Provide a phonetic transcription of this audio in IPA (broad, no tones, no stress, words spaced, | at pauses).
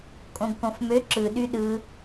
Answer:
kʼõɡkõfmø ǁɯ ɗyɗɯ